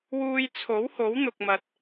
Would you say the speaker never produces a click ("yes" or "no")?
yes